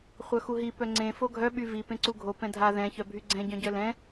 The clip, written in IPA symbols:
χʷ œ x u ɦ i p œ ŋ͡ǀ ẽ f o ɡʱ œ ɓ y v i p ẽ ǀ u ɡʱ o p ɛ̃ dʱ a ð ɛ̃ ç œ bʱ y ɡ͡ǀ ɛ̃ ɟ œ̃ ɟ œ l ɛ̃

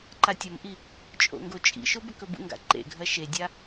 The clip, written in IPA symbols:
ǃ a tʲ ɐ m ʔ i | t͡ʃʼ o̰ ŋ ɡ o t͡ʃʼ ḭ ʃ o b ɵ k ɵ b ṵ ŋ ɡ a̰ ǃ ḛ ɡʱ ɐ ʃ e dʲ a

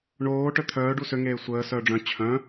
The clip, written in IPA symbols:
ɳ oː ʈ œ t̪ʰ œː ɖ u s ø ŋ eː sʷ əː s œː ɖ͡ʐ œ̃ t͡ɕʰ œ̃

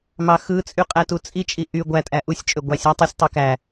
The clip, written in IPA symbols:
m ɑ x ɯ t͡sʼ y qʼ æ t u t͡sʼ i t͡ʃʼ i ʔ y ɡʷ æ tʼ æ ʔ u sʲ t͡ʃʼ ø ɡʷ ɑ sʲ æ tˤ u sʲ tˤ i k æ

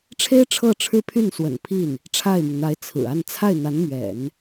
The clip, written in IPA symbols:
ʈ͡ʂʰ e˥ ɪ̯ ʈ͡ʂʰ ɤ˥˩ ʈ͡ʂʰ ɻ̩˥ pʰ y˥˩ n s w ə̰˨˩ n pʰ i˥˩ n | ʈ͡ʂʰ a˥˩ ɪ̯ m i˩ ŋ n̪ a˧˥ ɪ̯ t͡sʰ ɹ̩˨˩ a˥˧ n t͡sʰ a˥˩ ɪ̯ n̪ a˧˥ n m ɥ ɛ̰˨˩˦ n

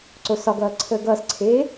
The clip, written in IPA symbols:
ǀ o s ɒ ɡ ʌː ǀʰ əː ɡ ʌː s ǀʰ eː

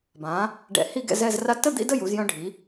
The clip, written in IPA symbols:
b ã˩˧ | ɖ ɛ̰˧˩ h i˥˧ ɡ ɛ̰˥˧ z ɛ˥˧ z r a˥ t ə˥˧ d̪ ḭ˥˧ d ə˥˧ j u˩˧ z j œ̃˧ ɖʱ i˩˧

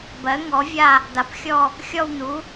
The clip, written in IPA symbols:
b ɜ˩˥ ŋ ɔ˩˥ vʲ a˦˨ | d̪ a˩˥ p xʲ ɔ˦˨ | xʲ ɔ˦˨ w n̪ u˩˥

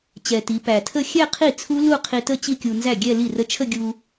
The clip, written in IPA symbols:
t͡ɕ ɛ˨˩ t i˩˧ p æ˨˩ tʰ ə˥˧ xʲ ɛ˥˧ qʰ i˥˩ t͡sʰ u˦˥ l u˥˧ qʰ i˧ t ə˥˧ t͡ɕ i˥˧ kʲ u˧ n z æ˥˩ ɡʲ ɛ˥˧ l i˥˩ r ə˦˥ t͡ʃʰ ə˥˧ ɡʲ u˧

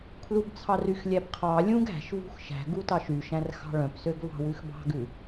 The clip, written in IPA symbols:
kʰ l u b t͡sʰ ɑ r y x lʲ æ b qʰ ɑ lʲ ũ ɡ æ̤ ʃ v ṳ x ʃ æ̤ ɡ u t ɑ ʃ y ʃ æ̃ r x ɑ̤ ɭ œ̃ p s ø ɡ v ɑ̤ w ʉ x b ɑ̤ ɡ ʉ

